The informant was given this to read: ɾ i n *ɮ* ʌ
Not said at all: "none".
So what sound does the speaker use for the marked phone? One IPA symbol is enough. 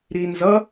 z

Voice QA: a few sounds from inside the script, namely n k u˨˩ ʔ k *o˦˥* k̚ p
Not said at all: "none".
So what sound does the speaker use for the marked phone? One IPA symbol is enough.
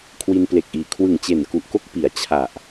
o˥˩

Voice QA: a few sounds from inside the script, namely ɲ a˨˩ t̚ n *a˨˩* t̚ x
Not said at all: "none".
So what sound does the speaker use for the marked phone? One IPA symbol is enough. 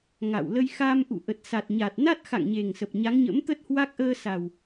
a˦˥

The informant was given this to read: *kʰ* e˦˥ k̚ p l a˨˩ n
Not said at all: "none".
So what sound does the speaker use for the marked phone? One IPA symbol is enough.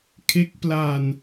kʰ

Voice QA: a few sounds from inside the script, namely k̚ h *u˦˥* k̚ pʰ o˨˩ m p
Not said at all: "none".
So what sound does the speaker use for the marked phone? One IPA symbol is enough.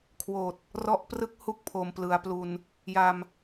u˥˩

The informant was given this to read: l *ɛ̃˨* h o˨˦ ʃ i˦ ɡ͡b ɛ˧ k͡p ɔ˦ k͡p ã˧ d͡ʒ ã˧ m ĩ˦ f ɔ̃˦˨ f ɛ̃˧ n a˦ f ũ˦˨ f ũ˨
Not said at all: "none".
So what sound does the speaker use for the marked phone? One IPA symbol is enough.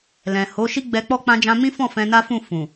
ɛ̃˨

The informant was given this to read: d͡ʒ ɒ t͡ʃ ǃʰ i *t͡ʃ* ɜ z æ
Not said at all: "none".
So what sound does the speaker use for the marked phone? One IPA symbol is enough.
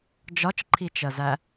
t͡ʃ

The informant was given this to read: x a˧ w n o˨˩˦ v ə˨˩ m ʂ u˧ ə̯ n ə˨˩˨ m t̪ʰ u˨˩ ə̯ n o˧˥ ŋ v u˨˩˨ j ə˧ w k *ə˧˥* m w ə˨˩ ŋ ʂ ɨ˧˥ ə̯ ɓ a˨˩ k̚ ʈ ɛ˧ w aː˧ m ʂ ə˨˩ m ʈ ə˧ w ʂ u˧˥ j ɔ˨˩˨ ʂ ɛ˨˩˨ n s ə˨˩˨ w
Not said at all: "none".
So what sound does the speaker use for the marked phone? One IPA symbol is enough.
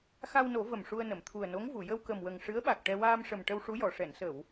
ə˨˩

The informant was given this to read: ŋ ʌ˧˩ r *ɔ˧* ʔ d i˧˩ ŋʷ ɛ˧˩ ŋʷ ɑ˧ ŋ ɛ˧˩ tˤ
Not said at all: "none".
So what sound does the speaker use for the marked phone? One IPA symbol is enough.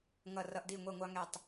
ʌ˧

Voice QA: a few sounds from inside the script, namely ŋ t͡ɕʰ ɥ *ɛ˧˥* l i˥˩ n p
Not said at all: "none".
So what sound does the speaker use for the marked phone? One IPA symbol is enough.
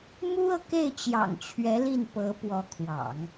ɛ˧˥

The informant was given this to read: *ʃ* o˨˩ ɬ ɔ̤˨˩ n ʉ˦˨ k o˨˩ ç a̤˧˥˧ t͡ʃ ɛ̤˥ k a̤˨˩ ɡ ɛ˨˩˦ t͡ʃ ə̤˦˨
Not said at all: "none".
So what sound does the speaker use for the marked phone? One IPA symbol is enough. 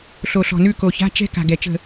ɬ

